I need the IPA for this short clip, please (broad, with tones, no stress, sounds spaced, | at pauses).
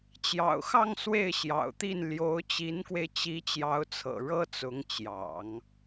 t͡ɕ j ɑ̰˨˩ ʊ̯ x ɑ˥˧ ŋ s w e˥˩ ɪ̯ ɕ j ɑ̰˨˩ ʊ̯ t̪ i˥˩ n l j o˧˥ ʊ̯ t͡ɕ i˧˥ n k w e˧ ɪ̯ t͡ɕ i˧˥ t͡ɕ j ɑ˧˥ ʊ̯ t͡sʰ ɤ̰˨˩ ɻ ɤ˥ t͡s ʊ˧˥ ŋ t͡ɕ j ɑ̰˨˩˦ ŋ